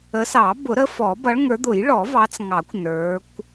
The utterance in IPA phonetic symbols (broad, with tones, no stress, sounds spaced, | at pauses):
ə˨˦ s ɑ˨˩˦ b ʊ˨˩˦ ɾ ə˨˦ f ɔ˨˩˦ b ʌ˨˦ ɭ ŋ ə˞˨˦ d̪ ʊ˨˩˦ j ɭ ɔ˨˩˦ v ɑ˨˦ t͡s ŋ ɑ˨˩˦ kʷ n ə˞˨˦ kʷ